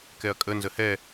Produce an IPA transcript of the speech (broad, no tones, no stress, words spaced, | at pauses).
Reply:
kɛɐ̯kʼə nzəhɛ